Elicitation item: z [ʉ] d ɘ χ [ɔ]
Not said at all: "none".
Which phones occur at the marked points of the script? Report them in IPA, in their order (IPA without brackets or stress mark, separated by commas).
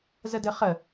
ə, ə